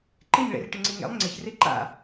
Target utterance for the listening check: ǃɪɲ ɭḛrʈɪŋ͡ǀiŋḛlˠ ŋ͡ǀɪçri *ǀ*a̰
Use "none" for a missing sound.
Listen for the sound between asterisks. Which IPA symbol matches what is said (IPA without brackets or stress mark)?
ǃ